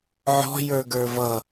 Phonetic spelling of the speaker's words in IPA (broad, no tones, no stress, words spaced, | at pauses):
ʕɔ̤jə˞ ɡə˞vʌ